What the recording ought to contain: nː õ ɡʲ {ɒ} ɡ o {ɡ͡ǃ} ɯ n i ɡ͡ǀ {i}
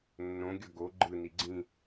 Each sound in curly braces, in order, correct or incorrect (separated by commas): incorrect, correct, incorrect